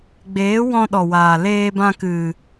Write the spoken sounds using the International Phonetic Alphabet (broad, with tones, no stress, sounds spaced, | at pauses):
ɡ͡b eː˨˦ w ɔ̃˧ ɗ ɔ˨ w aː˨ l eː˧ b ã˧ k ɨ˨